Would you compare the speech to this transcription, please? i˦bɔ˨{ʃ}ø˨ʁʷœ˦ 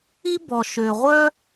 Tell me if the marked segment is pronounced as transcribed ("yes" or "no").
yes